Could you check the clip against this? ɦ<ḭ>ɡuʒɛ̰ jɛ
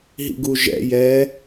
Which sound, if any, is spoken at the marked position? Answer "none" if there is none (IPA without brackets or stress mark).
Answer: ḭ